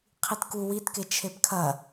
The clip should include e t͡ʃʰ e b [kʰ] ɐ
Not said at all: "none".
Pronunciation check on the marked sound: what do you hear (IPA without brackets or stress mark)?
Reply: kʰ